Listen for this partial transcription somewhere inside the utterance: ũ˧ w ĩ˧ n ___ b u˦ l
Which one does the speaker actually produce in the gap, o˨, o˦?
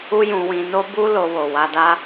o˦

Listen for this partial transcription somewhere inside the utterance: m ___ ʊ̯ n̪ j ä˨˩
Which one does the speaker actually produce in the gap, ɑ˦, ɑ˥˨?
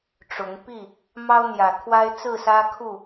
ɑ˦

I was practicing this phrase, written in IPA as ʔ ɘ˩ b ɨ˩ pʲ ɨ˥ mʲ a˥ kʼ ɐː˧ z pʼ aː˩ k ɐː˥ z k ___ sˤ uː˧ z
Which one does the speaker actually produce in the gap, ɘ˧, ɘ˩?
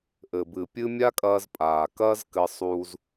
ɘ˧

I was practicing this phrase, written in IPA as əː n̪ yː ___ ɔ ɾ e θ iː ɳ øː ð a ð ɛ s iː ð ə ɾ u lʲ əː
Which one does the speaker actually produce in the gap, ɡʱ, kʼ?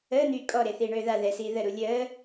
kʼ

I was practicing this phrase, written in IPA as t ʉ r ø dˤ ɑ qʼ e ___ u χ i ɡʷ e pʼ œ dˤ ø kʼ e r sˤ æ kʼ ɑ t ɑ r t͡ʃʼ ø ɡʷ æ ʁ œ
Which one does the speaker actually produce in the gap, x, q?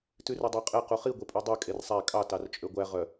q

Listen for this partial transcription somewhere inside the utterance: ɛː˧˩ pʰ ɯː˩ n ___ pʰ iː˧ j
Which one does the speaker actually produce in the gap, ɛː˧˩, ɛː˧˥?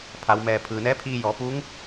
ɛː˧˥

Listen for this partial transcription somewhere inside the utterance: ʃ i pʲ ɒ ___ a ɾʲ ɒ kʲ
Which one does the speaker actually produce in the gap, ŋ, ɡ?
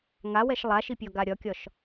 ɡ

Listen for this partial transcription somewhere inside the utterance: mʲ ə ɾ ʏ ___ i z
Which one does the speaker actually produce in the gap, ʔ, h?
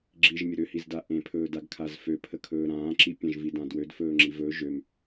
h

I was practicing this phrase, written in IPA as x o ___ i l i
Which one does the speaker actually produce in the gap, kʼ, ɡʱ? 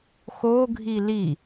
ɡʱ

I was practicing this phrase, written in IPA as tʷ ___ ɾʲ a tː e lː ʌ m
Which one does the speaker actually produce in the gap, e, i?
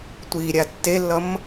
i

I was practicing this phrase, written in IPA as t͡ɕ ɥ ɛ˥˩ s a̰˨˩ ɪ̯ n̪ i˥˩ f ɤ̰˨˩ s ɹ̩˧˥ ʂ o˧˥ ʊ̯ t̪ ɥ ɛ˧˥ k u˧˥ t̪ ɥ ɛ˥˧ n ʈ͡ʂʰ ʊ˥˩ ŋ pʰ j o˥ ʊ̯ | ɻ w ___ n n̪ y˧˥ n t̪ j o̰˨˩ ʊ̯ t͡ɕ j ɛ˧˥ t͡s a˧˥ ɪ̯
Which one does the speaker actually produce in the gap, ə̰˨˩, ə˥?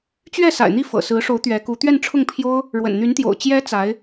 ə̰˨˩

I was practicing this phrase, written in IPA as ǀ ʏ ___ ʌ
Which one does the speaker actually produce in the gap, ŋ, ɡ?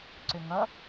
ŋ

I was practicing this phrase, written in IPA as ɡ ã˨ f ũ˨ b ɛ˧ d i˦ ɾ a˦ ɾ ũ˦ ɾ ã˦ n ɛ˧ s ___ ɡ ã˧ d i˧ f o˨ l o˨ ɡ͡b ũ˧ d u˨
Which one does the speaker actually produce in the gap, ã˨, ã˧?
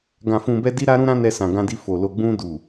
ã˨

